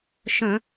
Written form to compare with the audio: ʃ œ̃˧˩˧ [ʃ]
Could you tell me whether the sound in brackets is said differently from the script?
yes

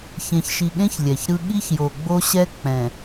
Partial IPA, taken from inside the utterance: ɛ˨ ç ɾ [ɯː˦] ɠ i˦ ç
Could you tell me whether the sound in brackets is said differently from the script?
yes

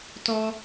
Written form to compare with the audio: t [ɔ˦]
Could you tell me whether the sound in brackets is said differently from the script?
no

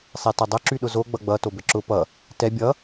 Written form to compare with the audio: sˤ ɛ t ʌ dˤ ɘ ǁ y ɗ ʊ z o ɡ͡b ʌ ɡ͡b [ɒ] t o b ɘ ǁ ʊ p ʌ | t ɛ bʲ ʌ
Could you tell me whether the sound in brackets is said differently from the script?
yes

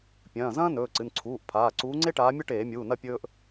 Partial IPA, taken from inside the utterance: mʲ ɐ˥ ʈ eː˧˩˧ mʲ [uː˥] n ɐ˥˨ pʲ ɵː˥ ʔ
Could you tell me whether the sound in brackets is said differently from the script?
yes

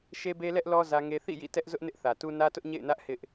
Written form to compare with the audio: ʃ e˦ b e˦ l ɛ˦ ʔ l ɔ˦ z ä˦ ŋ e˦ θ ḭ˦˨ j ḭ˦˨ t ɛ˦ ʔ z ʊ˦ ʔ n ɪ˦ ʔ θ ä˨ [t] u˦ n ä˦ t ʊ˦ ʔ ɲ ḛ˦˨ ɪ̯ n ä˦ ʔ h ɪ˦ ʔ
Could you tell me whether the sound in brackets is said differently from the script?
no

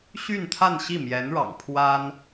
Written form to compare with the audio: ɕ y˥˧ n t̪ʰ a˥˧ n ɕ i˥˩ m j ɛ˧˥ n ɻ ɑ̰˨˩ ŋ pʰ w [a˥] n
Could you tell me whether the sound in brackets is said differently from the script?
no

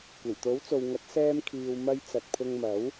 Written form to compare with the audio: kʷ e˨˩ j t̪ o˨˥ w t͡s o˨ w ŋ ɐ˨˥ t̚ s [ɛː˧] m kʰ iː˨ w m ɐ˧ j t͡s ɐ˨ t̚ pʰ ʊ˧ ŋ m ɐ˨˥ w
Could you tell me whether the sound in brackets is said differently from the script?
no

